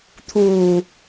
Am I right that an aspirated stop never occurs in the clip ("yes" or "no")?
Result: no